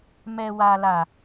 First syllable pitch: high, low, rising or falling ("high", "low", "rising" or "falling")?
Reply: low